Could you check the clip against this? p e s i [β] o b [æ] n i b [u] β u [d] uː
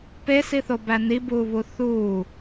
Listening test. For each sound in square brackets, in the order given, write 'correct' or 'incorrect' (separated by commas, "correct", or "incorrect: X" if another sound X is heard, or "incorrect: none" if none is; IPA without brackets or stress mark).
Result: incorrect: θ, correct, incorrect: uː, incorrect: θ